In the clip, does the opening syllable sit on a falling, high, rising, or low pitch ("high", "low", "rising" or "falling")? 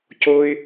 high